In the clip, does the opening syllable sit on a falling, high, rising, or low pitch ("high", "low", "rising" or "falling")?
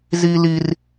high